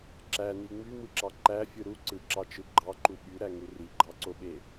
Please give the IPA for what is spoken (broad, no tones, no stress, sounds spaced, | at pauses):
ǁ æ n i ŋ͡m y m ɯ ǁ ɑ ǃ æ fʲ ɯ ɾ u ǀ ɯ ǁ ɑ t͡ʃ ɯ ɡ͡ǃ ɑ ǃ u ɓ y ɾ æ ŋ u r i ɡ͡ǃ ɑ ǀ o ɓ e